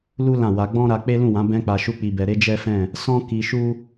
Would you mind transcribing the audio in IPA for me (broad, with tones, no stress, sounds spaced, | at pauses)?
l u˦ l ã˦˨ w a˧ ɡ͡b ɔ̃˦ ɾ a˧ k͡p e˦ l ũ˦˨ w ã˨˦ b ɛ̃˦ k͡p a˧ ʃ u˦ k͡p i˧ b ɛ˧ ɾ e˦ d͡ʒ ɛ˦ f ɛ̃˦˨ | s ɔ̃˦ k i˧ ʃ u˦